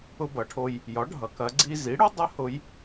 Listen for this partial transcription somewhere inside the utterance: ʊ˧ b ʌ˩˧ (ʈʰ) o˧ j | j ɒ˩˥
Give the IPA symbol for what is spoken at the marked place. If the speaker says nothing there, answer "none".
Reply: ʈʰ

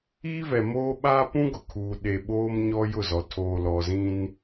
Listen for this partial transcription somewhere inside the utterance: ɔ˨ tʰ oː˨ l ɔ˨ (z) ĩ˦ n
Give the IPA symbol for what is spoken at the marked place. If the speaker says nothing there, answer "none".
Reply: z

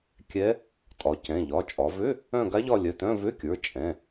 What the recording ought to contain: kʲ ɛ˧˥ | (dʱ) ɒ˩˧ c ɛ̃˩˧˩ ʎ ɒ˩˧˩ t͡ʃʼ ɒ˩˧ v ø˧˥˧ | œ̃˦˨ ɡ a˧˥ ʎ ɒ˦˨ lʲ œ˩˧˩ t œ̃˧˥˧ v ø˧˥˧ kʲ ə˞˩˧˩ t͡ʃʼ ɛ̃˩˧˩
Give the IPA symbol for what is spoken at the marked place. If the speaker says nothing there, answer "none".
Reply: tʼ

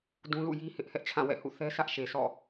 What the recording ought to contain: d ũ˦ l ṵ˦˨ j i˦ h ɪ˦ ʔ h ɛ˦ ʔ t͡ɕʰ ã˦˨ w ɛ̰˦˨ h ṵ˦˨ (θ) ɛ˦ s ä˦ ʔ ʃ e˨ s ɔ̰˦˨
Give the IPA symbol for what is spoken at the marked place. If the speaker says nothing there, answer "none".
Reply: θ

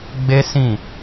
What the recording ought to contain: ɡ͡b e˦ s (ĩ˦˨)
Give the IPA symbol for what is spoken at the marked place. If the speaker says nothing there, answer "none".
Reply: ĩ˦˨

